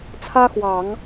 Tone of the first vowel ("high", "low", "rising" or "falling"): high